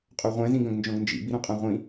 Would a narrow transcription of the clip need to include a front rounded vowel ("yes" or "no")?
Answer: yes